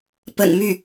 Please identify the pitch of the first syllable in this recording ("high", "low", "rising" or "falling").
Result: low